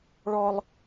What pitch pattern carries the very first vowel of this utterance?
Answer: high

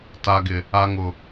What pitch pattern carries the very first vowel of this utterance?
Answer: low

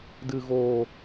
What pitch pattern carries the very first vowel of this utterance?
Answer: low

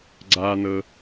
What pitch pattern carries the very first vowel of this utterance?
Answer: high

